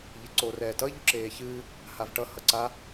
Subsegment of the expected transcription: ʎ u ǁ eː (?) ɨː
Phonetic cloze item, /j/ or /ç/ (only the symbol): ç